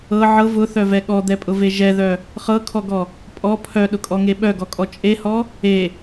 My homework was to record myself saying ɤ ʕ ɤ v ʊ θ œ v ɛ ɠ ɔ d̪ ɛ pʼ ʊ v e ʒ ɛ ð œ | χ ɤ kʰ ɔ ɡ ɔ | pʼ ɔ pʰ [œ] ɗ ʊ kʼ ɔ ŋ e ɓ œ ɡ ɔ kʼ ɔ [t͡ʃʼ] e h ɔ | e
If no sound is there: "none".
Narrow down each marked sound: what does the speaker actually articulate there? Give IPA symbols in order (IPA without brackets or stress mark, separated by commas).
œ, t͡ʃʼ